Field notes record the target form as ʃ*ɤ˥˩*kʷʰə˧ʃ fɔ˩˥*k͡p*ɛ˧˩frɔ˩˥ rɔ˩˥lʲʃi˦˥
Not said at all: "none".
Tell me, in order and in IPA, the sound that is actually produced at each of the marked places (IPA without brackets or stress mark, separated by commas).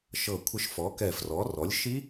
ɤ˧˩, k